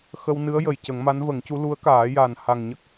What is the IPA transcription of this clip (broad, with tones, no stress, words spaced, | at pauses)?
xə˧wnɨ˧˥ə̯jə˨˩j cə˨˩˦ŋma˧˥nvə˨˩˦ŋcu˧˥ lu˧˥ə̯kaː˨˩˦ja˨˩n ha˨˩ŋɲə˦˥k̚